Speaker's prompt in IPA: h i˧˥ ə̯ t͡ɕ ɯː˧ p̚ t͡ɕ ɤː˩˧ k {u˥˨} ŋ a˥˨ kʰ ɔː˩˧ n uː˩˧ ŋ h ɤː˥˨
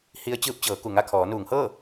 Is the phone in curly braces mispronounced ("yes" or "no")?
yes